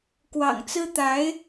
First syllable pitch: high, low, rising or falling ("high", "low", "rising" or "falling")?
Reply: low